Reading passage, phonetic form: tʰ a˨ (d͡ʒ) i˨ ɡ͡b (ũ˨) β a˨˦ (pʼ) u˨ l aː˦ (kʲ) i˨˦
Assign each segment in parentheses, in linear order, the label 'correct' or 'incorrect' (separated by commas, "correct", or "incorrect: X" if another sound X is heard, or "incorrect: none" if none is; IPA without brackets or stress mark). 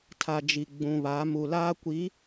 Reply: correct, correct, incorrect: m, incorrect: kʷ